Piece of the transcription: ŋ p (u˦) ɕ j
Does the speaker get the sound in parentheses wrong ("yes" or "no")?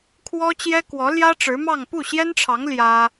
yes